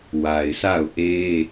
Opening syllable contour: low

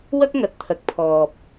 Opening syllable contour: high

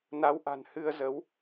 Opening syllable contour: rising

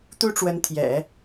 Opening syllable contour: high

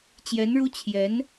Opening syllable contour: rising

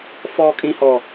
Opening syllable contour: high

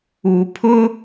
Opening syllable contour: low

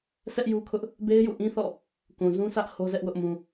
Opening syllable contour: high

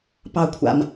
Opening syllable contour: low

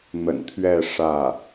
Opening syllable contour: low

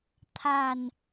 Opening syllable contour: low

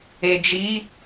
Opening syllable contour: low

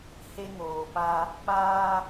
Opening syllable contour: high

